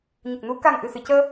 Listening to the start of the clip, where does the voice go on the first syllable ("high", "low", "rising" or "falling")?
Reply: low